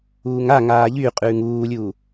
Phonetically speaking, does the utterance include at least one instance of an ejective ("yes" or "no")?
yes